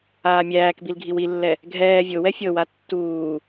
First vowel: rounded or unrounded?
unrounded